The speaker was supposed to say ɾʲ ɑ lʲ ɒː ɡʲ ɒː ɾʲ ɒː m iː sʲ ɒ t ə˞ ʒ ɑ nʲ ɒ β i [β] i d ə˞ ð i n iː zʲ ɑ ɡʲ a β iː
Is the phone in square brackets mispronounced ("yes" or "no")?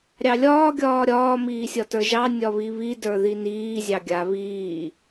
no